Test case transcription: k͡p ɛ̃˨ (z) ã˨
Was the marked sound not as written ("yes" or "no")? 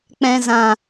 no